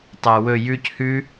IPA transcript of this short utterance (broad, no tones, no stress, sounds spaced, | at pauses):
tˤ ɐ w ɵ j ʉ c h ʉ